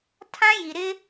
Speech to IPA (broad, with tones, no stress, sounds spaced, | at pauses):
tʰ ã˦ j i˨ ɾ ɪ˦